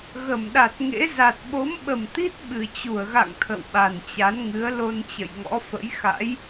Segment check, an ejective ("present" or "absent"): absent